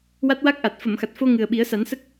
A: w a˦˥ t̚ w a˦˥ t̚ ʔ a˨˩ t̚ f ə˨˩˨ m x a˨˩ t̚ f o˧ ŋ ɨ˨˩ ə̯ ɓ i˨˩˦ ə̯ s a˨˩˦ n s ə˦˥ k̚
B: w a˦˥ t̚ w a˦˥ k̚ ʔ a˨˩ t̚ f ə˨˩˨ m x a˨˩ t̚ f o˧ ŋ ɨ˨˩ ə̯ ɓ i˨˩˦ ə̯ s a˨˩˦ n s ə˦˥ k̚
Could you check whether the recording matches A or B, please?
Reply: B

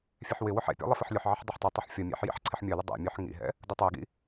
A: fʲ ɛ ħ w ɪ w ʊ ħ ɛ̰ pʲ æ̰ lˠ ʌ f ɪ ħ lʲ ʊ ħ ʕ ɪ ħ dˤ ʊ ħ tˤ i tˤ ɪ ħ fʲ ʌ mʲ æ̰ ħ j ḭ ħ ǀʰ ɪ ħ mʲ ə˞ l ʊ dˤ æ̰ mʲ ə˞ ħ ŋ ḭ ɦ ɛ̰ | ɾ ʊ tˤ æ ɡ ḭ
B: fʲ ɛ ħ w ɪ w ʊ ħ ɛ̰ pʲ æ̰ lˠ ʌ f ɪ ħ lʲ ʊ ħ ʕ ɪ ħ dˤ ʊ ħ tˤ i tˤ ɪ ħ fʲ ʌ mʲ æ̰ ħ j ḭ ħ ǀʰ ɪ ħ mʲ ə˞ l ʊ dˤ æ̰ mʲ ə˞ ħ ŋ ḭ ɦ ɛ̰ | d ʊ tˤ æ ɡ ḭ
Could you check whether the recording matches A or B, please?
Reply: B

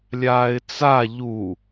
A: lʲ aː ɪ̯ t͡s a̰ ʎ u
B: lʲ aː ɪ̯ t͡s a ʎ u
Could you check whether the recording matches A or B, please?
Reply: B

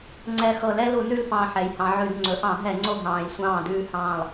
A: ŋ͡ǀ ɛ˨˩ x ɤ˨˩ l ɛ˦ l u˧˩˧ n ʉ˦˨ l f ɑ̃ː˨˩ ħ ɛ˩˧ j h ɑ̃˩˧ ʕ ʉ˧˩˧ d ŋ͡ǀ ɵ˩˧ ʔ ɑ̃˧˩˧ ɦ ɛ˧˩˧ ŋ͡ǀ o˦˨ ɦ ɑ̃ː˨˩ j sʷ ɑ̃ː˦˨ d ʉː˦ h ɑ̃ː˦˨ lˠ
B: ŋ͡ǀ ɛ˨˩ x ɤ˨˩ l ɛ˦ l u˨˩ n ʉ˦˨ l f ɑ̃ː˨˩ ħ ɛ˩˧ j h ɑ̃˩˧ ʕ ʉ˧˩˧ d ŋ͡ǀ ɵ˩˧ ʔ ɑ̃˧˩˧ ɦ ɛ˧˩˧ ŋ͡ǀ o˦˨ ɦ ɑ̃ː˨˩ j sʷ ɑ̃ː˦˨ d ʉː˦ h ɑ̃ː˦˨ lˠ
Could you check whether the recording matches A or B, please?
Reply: A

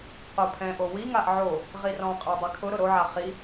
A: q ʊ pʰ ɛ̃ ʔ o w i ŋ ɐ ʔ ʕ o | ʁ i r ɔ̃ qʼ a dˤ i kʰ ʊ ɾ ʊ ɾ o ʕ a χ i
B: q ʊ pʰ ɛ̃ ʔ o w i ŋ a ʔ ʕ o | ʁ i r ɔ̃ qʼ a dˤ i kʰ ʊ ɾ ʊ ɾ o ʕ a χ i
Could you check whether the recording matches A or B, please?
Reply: B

